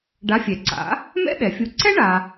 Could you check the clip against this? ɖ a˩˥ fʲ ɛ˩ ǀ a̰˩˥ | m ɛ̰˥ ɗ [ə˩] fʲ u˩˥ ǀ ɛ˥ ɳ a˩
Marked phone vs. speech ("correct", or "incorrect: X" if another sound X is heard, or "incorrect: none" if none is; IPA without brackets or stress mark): incorrect: ɛ˩